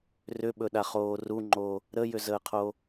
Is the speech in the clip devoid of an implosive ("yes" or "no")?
no